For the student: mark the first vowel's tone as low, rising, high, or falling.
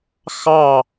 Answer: falling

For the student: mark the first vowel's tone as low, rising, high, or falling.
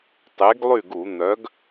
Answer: rising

